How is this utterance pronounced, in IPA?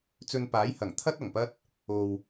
t͡s ɵ˧ n p aː˨˥ j h ɐ˨˩ ŋ t̪ʰ ɐ˥ t̚ ɐ˨˩ ŋ p ɐ˥ t̚ | o˨ w

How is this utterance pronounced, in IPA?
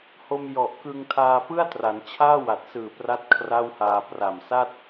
h o˧ m j ɔ˨˩ ʔ k ɯ˧ ŋ tʰ aː˧ p ɯ˥˩ a̯ t r a˩˦ n t͡ɕʰ aː˥˩ w a˨˩ t̚ s ɯː˨˩ p r a˥˩ t̚ kʰ r a˥˩ w h aː˧ p r a˨˩ m s a˥˩ t̚

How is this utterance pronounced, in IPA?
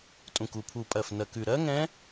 tʼ ũ˨˩ k u˨˩ pʰ u˨˩ pʼ ɜ˨˩ f n ɜ˨˩ k ʉ˨˩ ɾ ɜ˦˥ ŋ ɛ̃˦˥

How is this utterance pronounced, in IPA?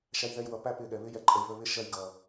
ʃ æ˧ j ð ɛ˧ j w ʌ˨ p æ˧ p ɪ˧ ɠ ɛ˨ β ɪ˦ j ɛ˨ ǃʼ ə˨ j β ə˧ β ɪ˦ ʃ ɜ˧ j ɡ ʌ˨

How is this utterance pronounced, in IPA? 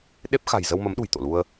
ɗ e˦˥ p̚ x a̤˨˩ j z ə˧ w m ə˨˦ m ɗ ṳ˨˩ j t̪ o̰˧˨ l u˧ ə̯

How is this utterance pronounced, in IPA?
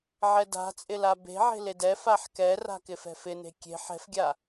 ʕ ɛ d a̤ t͡sʼ ɪ l a b e̤ ʕ e̤ l e d ɛ f a ħ k ɛ r a̤ k ɪ f ɛ̤ f ɪ n e̤ kʲ e̤ ħ ɛ̤ f ɡʲ a

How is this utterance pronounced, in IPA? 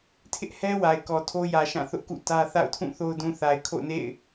tʰ ɪ˦ ʔ h ɛ˦ w a˨ ɪ̯ k ɔ˨ tʰ o˦ j ä˨ ʃ ã˦˨ θ ʊ˦ ʔ k ṵ˦˨ t ä˦ θ a̰˦˨ ʊ̯ tʰ ũ˦˨ θ o˦ ʊ̯ d ũ˨ θ a˨ ɪ̯ kʰ o̰˦˨ ʊ̯ n ḛ˦˨ ɪ̯

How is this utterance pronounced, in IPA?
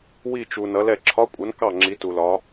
w i˥˨ t͡ʃ u˨ n ʌ˨˥ l ɛ˥˨ ǁʰ ɒ˧˥˧ kʷʼ ʌ˨˥ n k ɑ˥˨ ŋ͡ǁ i˨˥ t u˨ l ɒ˨˥

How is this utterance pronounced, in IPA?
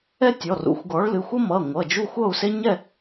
ɛ˥ tʲ ɔ˩˧˩ r ṵ˨˥ xʷ ɡ ɔ˨˥ ɭ l ɨ˩˧˩ xʷ ʌ˥ m ʌ˩˧˩ ŋʷ ʌ˩˧˩ d͡ʒ u˥˨ xʷ ʌ˥˨ u̯ s e˥ ɲ ɛ˥˨

